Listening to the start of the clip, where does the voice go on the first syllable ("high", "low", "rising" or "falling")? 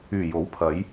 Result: low